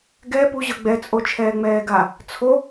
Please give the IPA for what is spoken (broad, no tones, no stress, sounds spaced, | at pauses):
ɡ ɛ p u ʑ ɤ ɡ͡b ɛ t͡sʼ o t͡ʃʰ ɛː ŋ͡m ɛː ɡ a | t͡sʰ o